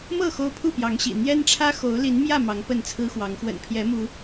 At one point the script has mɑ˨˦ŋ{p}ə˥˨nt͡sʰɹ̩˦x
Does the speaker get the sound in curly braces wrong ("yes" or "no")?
no